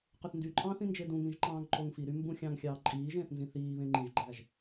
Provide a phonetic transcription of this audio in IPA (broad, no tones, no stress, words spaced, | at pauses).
qøθndyǃʼɑ̃ːθ ĩnd͡ʒedũŋĩʒ ǃɑ̃ːŋǃoŋfiɾy mbũxʲɑ̃ŋ xʲɑːǃʼiːʒẽːθ nzĩθiːβẽ ŋ͡ǃĩʒɡ͡ǃæʒ